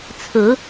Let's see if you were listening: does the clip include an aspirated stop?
yes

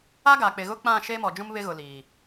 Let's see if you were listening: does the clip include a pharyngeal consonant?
no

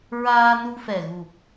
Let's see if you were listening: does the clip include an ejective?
no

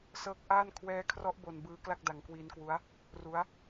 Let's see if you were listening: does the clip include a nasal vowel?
no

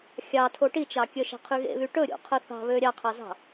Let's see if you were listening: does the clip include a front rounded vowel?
yes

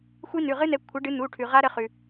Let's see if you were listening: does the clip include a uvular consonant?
yes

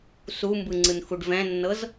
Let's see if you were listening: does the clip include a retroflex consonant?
yes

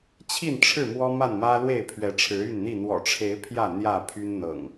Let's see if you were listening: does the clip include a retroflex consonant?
yes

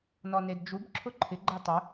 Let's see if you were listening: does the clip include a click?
yes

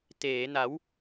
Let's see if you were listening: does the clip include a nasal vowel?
no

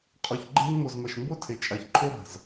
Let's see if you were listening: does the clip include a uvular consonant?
yes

